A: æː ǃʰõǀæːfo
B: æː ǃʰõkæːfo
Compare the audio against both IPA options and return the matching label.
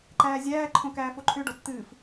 B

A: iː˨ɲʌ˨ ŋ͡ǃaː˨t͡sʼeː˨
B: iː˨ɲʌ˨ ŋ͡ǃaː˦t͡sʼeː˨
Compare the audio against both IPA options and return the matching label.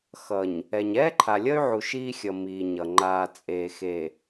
A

